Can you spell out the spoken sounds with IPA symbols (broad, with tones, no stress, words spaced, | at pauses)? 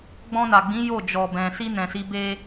ɡ͡bɔ̃˧na˨ɡ͡bĩ˨˦ jo˦˨d͡ʒɔ˨bɛ̃˨ si˧ nɛ̃˨si˨˦be˦